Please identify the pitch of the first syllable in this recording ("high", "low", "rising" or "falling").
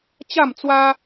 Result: falling